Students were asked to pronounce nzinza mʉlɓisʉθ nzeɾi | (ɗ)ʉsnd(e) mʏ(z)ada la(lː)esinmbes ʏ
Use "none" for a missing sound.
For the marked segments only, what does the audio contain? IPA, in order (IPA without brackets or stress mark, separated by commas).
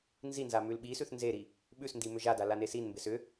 ɓ, i, ʒ, n